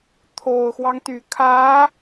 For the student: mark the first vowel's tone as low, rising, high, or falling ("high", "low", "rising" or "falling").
low